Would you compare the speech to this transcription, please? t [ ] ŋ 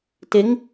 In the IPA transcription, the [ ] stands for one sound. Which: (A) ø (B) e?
B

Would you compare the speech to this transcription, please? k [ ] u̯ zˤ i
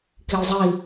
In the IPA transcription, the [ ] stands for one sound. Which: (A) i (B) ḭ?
A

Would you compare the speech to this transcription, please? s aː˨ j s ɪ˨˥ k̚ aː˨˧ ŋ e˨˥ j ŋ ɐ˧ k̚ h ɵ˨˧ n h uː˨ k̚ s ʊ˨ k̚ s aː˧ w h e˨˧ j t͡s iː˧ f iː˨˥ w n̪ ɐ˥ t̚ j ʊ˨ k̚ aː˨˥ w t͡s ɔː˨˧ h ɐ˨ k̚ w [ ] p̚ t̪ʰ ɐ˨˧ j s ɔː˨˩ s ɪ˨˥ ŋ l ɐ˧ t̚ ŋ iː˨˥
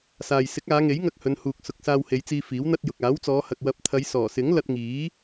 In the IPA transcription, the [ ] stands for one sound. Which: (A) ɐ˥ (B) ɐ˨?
B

